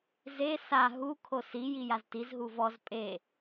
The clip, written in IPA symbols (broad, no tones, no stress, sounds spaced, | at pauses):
z e s a ɦ u kʰ o s i j i j a z t i z ɦ u v ɔ z pʼ e